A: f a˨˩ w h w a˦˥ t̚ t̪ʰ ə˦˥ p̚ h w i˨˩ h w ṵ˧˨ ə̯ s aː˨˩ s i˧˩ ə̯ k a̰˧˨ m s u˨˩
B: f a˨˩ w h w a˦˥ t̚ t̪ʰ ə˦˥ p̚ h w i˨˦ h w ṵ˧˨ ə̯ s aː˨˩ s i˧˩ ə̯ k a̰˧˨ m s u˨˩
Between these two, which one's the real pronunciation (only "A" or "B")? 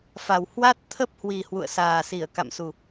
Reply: A